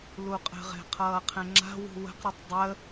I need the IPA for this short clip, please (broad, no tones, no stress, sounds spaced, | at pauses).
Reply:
l u qʼ ə̤ ʁ ɛ̤ qʰ ʌː qʰ ɛ̃ ŋ͡ǁ a̤ w ṳ w ə̤ q ɾ ʌ tˤ dˤ ə